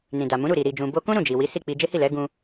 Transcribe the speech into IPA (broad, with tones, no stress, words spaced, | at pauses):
nĩ˨da˨mũ˨˦ ɾu˦˨ɾi˨ ɾi˨d͡ʒũ˨bo˧kũ˦ ɾũ˦˨d͡ʒi˨wi˨˦ si˦˨k͡pi˧ d͡ʒe˦hi˦˨lɛ˨˦ ɡũ˧